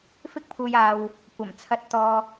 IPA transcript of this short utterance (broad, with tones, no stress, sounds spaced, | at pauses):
f ɪ˥ k̚ pʰ uː˧ j aː˧ w | kʷ ɐ˨˩ m t͡sʰ ɐ˧ t̚ t̪ ɔː˧